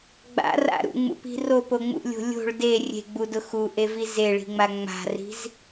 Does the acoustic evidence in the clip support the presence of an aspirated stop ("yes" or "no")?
no